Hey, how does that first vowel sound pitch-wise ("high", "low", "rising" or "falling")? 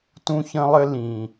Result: high